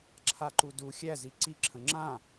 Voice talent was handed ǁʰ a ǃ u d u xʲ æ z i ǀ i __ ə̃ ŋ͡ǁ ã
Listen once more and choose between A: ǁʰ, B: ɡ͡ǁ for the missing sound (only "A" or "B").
A